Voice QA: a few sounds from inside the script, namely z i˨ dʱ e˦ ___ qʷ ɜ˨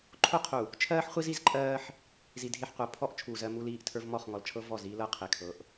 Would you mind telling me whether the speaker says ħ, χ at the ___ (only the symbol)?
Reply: ħ